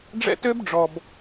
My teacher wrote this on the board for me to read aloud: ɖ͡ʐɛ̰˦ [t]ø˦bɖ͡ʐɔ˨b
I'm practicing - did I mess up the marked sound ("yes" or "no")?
no